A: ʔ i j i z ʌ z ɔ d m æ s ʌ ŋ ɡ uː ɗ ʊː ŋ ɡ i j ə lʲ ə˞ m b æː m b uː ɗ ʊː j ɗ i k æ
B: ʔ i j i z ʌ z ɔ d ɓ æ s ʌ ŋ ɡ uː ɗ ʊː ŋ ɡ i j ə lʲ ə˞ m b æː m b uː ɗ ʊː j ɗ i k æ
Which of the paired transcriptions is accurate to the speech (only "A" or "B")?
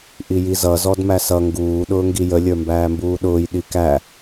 A